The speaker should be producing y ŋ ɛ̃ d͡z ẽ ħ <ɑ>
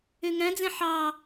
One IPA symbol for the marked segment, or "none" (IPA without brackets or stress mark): ɑ